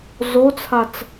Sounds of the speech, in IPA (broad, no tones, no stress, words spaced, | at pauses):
zot͡sʰat͡s